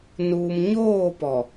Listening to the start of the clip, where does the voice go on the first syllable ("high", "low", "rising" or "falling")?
low